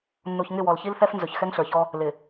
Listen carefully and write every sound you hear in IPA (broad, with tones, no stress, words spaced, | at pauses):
nːu˨çŋɪ˦˨wɔ˨l çi˦lθɛ˦f nzɵ˨çxɛ˦ŋɬə˞˨çɔ˦ | lɪ˨